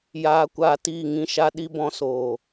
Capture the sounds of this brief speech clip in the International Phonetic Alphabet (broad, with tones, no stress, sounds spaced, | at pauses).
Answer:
j aː˧ kʷ aː˧ t iː˦˨ ŋ ĩ˦ ʃ a˦ ɗ i˦ b ɔ̃˧ s oː˨